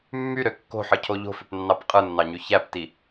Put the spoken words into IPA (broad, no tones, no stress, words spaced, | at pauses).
mːyɾø kːo̤ħɯcʰo ʎo̤føpnːɑp qʼɯnːɑɲy çæpti